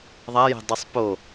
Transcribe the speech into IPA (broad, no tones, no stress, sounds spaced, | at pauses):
ðˤ a j ɛ̤ dˤ i sˤ p o